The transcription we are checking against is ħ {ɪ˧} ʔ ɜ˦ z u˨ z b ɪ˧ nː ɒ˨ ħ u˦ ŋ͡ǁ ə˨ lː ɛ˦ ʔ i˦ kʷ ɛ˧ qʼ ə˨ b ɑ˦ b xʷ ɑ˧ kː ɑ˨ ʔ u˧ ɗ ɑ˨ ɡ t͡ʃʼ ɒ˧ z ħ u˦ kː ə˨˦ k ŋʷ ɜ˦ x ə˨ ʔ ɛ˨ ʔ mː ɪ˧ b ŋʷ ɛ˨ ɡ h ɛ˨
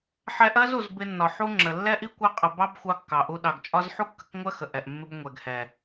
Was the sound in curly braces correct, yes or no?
no